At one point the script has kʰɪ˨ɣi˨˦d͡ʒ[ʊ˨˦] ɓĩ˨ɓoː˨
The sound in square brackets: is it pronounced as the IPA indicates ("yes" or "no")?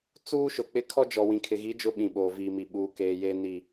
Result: yes